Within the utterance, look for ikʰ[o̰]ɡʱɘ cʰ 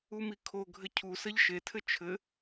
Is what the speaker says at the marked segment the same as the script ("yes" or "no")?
no